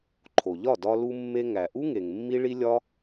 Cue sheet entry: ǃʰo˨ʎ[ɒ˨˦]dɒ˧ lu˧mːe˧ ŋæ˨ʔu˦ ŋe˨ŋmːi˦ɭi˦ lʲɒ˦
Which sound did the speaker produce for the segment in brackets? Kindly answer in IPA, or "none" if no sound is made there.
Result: ɒ˦˨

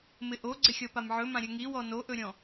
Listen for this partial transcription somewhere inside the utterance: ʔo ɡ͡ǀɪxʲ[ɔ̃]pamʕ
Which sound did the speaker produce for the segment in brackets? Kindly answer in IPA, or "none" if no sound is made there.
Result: ɔ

